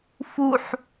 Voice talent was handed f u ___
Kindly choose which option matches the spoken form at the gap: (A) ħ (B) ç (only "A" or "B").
A